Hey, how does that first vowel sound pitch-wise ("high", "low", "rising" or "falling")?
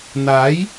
rising